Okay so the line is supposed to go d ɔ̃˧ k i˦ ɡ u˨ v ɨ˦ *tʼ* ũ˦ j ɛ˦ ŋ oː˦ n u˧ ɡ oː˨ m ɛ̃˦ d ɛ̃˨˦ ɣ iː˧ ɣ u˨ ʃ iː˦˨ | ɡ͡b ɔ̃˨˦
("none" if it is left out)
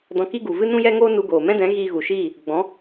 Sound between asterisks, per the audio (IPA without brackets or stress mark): n